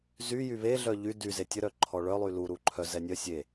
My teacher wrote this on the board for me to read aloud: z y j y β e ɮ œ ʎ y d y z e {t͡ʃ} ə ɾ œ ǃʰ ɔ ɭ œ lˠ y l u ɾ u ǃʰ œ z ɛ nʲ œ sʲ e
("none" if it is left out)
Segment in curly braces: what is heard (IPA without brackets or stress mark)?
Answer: tʲ